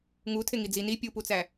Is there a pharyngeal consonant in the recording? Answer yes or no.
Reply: no